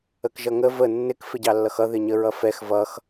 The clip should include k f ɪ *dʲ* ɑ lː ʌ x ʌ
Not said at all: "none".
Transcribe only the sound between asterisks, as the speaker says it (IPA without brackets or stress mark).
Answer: ɟ